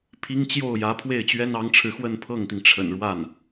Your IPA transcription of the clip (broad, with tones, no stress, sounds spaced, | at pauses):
pʰ i˥ ŋ t͡ɕ j o˥˩ ʊ̯ j ä˧˥ pʰ w e˥˩ ɪ̯ t͡ɕ ɥ ɛ˥ n ɑ˧˥ ŋ ʈ͡ʂʰ ɻ̩˧ x w ə˥˧ n pʰ ɤ˥˩ ŋ t̪ i˩ ŋ ʈ͡ʂʰ ə̰˨˩ n ɻ w a˥˩ n